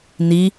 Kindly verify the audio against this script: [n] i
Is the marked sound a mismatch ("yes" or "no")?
no